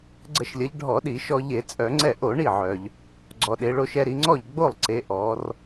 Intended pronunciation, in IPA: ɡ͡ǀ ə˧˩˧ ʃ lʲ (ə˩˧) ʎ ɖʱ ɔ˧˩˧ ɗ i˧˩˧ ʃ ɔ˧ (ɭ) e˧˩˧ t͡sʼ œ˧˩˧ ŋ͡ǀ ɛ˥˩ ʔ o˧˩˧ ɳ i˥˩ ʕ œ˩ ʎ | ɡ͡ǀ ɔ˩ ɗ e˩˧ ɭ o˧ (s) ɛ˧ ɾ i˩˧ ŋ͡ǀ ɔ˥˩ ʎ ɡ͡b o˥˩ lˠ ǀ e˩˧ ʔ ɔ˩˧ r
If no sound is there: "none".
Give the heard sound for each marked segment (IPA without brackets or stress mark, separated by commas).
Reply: ə˩˧, ʎ, ʃ